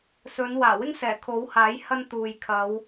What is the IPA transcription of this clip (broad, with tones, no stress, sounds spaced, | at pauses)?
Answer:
s ɵ˨˧ n w aː˨˩ w ɪ˥ ŋ s ɛː˨˩ kʰ o˨˥ w h aː˨˥ j h ɐ˧ n t̪ uː˨ j kʰ ɐ˨˧ w